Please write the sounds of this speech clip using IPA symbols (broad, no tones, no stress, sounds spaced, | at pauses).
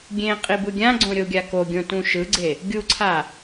ɡʲ ẽ qʼ i b ɯ ɡʲ ã ɡ͡ǀ õ ɾʲ o ɡʲ a k o ɡʲ õ t ũ ʃ ɯ ɡ͡ǀ e | ɡʲ u ǀʰ a